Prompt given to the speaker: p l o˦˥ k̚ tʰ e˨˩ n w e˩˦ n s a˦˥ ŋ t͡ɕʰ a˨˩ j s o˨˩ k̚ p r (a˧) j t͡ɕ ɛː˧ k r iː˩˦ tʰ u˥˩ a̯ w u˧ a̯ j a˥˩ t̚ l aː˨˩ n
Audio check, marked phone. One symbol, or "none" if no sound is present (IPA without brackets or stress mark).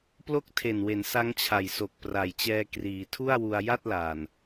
a˩˦